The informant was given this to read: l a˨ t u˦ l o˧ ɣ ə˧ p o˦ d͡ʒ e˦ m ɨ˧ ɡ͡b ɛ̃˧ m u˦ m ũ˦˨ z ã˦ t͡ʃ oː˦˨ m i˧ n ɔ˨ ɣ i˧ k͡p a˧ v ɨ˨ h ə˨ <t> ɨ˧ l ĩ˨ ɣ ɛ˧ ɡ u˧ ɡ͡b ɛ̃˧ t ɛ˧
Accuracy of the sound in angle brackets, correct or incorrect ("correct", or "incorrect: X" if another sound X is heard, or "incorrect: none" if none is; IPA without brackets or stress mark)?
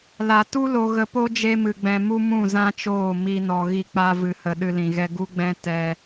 incorrect: ɗ